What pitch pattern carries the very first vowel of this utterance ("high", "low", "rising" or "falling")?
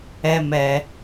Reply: high